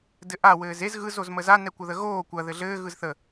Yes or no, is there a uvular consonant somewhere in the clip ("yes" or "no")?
no